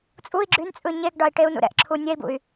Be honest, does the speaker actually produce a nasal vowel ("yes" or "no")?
no